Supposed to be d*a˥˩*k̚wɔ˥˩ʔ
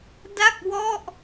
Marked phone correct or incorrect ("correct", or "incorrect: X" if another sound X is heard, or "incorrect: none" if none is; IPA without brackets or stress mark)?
correct